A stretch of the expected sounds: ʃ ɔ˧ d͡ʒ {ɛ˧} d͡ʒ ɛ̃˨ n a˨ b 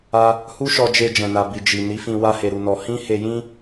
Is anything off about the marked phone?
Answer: yes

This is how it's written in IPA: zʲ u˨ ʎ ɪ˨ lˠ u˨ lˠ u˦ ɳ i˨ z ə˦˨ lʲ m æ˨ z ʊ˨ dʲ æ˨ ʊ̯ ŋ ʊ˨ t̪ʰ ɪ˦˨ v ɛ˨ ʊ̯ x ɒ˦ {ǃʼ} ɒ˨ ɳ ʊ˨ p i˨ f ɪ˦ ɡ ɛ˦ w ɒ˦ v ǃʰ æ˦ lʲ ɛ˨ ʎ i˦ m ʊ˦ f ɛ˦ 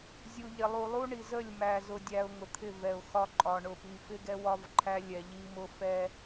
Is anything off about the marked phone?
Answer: no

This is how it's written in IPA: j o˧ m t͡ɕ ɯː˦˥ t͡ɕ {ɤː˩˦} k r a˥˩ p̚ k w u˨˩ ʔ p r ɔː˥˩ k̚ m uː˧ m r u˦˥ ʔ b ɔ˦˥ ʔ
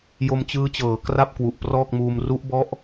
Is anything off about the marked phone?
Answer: no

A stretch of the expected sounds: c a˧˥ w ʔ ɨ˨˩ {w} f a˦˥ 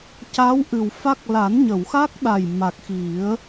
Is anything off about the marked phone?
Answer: no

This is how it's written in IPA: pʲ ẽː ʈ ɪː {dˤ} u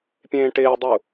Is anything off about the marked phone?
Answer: no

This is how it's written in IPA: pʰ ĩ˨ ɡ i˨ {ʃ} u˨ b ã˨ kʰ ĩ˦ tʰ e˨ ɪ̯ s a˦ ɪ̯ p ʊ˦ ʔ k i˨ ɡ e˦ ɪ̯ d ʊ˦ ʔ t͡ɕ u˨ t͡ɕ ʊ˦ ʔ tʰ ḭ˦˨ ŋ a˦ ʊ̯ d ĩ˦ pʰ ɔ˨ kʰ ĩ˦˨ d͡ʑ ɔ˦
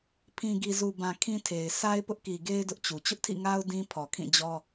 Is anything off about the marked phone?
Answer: yes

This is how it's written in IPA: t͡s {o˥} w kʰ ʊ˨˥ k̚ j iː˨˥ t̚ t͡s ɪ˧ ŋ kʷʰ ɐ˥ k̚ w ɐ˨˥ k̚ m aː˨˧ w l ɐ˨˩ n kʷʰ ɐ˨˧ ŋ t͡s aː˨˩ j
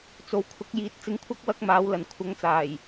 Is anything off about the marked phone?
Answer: yes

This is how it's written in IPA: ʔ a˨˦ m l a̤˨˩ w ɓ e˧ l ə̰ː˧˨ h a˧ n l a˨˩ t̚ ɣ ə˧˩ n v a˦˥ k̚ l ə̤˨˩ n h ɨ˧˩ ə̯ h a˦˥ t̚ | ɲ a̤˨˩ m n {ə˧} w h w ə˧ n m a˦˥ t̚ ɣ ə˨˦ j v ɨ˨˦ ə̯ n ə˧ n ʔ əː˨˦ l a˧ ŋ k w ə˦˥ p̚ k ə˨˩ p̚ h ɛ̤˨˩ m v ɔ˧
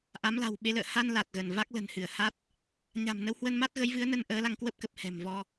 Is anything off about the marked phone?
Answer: no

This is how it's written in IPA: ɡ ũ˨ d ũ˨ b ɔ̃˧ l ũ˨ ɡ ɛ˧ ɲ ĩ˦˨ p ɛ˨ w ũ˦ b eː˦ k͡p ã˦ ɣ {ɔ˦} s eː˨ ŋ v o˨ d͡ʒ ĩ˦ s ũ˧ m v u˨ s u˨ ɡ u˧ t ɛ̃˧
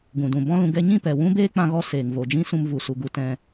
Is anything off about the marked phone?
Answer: no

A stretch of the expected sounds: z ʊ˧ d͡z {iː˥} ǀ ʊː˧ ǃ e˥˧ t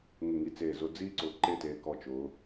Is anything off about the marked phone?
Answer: no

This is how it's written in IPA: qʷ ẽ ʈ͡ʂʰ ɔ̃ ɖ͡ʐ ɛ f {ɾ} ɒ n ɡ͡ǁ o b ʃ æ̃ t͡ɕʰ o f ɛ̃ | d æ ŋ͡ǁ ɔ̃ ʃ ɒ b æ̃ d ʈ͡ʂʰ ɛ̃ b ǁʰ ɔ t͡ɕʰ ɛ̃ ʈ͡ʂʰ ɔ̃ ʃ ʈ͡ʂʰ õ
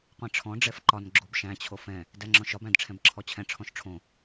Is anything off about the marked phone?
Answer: yes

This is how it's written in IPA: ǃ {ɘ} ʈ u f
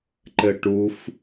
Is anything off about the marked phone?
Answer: no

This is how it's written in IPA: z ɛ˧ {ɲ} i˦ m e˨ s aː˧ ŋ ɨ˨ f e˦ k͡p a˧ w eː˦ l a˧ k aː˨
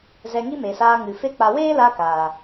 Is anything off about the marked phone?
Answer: yes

